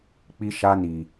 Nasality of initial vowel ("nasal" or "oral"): oral